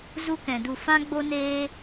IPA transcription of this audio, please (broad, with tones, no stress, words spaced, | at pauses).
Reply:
zu˦kɛ̃˧du˦˨ fã˦ɡ͡bo˦ neː˦